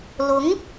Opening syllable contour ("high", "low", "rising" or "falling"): rising